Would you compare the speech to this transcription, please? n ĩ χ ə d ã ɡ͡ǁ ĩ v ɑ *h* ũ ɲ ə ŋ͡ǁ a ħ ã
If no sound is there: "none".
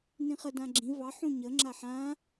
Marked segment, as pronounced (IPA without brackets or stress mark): ħ